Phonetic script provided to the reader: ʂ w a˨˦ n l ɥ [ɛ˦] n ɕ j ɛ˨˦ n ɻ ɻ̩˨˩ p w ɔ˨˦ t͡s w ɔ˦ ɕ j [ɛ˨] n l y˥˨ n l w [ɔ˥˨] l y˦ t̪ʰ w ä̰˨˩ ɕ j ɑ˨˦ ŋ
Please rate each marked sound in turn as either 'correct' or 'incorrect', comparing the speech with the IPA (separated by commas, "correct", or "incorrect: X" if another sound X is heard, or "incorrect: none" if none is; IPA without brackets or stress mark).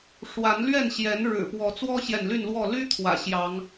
incorrect: ɛ˥˨, correct, correct